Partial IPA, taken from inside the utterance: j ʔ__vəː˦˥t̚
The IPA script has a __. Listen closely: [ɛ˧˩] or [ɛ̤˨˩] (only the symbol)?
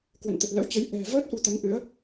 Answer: ɛ̤˨˩